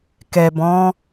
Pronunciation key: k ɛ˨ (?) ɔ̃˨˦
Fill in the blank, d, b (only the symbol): b